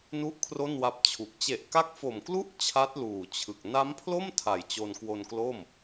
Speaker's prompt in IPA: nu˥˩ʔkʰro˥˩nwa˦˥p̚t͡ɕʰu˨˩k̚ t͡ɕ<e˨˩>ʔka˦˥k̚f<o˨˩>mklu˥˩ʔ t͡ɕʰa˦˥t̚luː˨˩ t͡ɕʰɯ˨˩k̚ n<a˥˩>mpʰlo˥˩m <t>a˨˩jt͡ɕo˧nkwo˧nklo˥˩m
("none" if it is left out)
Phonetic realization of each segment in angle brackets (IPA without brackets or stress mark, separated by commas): e˨˩, o˨˩, a˦˥, tʰ